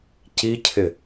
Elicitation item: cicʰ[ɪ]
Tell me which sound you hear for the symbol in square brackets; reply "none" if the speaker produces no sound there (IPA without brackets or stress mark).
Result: ɪ